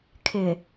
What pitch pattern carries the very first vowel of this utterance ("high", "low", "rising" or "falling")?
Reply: low